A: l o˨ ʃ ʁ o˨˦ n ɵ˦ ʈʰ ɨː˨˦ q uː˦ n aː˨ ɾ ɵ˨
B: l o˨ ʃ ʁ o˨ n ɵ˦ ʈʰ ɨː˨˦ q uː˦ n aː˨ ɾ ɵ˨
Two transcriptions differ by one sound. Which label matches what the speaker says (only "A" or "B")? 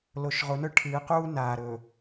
A